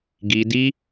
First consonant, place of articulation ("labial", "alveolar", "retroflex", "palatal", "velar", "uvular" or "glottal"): velar